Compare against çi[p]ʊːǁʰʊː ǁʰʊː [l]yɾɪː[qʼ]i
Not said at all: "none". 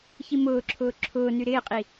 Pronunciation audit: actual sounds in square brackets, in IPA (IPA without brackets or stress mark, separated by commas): m, n, qʼ